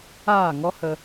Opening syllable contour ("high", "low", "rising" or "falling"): falling